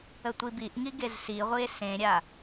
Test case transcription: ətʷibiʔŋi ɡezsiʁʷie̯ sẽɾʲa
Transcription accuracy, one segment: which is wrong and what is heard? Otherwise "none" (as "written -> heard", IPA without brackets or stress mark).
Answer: none